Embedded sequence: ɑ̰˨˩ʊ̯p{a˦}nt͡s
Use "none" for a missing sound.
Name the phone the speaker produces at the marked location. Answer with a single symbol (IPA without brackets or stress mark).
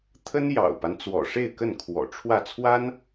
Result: a˦